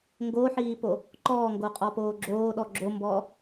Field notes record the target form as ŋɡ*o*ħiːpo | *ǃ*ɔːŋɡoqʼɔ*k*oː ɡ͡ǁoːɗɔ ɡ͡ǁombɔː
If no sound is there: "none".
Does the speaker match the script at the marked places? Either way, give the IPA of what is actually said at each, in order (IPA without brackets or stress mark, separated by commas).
o, ǃ, p